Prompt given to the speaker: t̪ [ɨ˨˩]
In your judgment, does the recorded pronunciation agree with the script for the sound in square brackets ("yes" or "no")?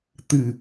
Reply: yes